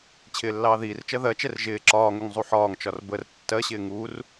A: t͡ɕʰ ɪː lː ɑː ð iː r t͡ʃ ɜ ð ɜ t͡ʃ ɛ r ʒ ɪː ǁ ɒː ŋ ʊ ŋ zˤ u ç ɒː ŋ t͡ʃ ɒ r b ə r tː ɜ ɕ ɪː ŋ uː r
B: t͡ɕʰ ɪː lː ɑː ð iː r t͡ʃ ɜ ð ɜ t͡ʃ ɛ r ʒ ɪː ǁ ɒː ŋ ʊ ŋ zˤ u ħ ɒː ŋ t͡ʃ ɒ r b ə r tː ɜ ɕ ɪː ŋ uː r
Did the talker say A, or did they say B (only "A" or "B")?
B